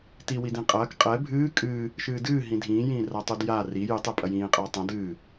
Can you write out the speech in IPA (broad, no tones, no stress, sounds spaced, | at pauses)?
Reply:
t i w i d ĩ qʼ ɐː k qʼ ɛ bʱ ɨː kʼ ɨː | ʃ ɨː d ɨː ɦ ĩ dʱ ĩː j ĩː r a tˤ u d j a r i j ɨ tˤ ɛ pʼ ɐ j ĩː qʼ ɐː tˤ ɐ̃ d ɨː